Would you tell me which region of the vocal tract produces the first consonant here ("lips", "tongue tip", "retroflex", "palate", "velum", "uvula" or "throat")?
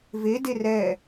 lips